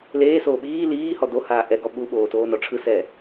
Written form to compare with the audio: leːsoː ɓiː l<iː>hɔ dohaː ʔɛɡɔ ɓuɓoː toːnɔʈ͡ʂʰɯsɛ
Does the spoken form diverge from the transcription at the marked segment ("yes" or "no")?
no